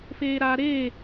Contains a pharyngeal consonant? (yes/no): no